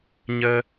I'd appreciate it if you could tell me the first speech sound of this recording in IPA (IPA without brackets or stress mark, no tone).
ɲ